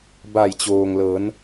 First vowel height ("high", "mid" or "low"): low